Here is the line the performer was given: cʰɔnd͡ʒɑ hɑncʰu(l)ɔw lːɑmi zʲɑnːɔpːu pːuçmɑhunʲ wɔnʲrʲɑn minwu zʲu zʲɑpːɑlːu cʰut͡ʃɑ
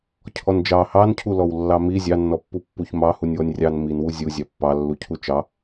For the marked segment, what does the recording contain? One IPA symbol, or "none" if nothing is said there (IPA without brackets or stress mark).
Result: l